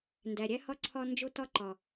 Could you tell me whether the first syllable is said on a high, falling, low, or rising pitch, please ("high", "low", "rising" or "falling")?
low